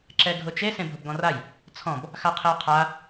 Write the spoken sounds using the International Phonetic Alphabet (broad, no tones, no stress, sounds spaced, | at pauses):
ǁ ɛ ɡʱ ʊ t͡ʃ e s ẽ bʱ ʊ b ɡ ɔ̃ r a j | t͡sʰ ɔ̃ b | x a qʰ e ʊ̯ qʰ a